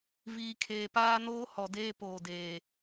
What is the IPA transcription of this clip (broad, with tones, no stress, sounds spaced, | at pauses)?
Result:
v iː˨ kʰ eː˨ p aː˦ n oː˦ h ɔ˨ d eː˦ p oː˨ d eː˨